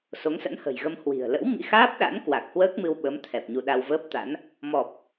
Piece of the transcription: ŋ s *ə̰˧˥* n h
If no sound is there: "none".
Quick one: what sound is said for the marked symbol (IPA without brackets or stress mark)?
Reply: ə̰˧˥